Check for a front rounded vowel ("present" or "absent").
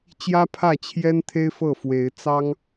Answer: absent